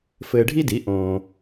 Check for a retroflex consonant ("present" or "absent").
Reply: present